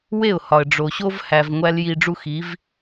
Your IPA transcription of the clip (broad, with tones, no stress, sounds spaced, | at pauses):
w e˥˩ ʊ̯ h ɒ˩ ə̯ ɖ͡ʐ o˩ ɕ o˥ v h æ˩ v ŋʷ æ˧ l j i˧ ɖ͡ʐ u˥ x i˩˥ v